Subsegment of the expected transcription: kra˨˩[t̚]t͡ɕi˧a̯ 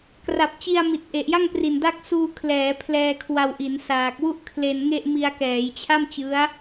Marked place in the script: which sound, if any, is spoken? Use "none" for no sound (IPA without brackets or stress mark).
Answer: p̚